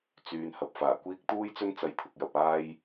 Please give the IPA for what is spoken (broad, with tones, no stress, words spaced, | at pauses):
t͡syː˨˧n hɐ˨p̚faː˨˩ kʷiː˥k̚ t̪uː˥jt͡sɵ˥nt͡sɐ˧j t̪ʰʊ˧k̚jɐ˧p̚aː˥j